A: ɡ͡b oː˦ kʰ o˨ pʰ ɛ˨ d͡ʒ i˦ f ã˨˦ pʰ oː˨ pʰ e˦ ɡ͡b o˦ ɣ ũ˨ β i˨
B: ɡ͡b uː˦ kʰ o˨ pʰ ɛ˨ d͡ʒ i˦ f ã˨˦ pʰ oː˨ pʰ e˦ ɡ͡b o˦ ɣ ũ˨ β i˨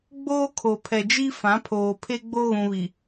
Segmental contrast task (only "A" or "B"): A